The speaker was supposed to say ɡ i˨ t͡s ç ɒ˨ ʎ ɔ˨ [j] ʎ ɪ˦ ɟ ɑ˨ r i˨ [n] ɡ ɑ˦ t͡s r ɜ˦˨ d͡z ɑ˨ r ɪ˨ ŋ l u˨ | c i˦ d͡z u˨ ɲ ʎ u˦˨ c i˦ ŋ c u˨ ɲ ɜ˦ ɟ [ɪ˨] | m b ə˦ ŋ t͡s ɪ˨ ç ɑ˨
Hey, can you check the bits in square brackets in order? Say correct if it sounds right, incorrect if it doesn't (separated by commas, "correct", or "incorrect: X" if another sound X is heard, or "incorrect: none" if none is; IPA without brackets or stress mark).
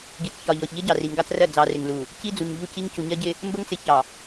incorrect: ç, incorrect: ŋ, incorrect: ɪ˦